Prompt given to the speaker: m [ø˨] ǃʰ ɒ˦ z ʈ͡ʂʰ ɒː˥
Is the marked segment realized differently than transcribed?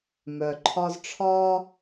yes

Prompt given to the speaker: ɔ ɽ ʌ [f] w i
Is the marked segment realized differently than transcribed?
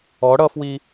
no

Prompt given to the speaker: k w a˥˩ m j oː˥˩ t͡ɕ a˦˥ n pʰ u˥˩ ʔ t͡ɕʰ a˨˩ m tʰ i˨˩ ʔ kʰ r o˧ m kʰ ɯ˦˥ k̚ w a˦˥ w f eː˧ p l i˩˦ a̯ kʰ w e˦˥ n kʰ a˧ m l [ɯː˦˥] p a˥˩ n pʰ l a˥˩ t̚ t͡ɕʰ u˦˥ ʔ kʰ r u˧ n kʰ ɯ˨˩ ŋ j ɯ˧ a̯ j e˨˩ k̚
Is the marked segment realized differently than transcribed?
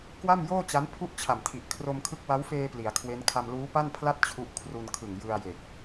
yes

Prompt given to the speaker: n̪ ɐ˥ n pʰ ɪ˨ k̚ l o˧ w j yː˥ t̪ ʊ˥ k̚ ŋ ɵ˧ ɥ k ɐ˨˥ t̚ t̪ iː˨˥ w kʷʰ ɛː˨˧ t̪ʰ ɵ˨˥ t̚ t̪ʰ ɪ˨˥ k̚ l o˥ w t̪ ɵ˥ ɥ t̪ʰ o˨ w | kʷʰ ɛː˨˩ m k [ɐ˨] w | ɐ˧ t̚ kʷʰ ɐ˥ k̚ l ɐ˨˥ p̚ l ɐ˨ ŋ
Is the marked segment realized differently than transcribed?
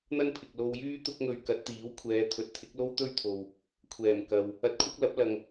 no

